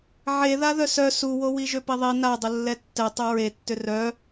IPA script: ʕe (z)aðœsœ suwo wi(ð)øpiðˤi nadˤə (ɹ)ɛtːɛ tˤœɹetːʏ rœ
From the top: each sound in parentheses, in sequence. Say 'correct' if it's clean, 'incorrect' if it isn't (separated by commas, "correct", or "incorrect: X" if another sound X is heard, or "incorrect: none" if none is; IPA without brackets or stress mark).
incorrect: ð, incorrect: ʒ, incorrect: lː